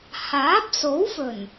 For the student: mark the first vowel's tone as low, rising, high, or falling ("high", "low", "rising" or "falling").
rising